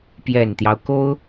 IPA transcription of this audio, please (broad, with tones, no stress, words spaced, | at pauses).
pjɛ˨˩nt̪jɑ˦ʊ̯ko˥ʊ̯